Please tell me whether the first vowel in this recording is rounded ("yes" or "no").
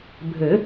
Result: no